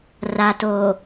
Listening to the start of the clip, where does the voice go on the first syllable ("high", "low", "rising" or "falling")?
low